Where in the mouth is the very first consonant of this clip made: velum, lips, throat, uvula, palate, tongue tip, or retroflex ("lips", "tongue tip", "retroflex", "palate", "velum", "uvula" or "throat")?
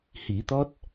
throat